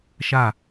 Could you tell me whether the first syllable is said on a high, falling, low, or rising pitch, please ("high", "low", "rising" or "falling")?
falling